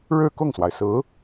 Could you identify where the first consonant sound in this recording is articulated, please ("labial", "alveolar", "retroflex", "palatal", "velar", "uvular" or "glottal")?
retroflex